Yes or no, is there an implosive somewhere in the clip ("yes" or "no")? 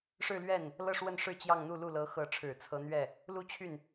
no